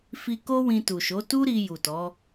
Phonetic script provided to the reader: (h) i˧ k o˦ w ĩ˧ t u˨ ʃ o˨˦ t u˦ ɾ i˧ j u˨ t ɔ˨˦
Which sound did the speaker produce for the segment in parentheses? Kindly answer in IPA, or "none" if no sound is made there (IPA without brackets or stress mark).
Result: f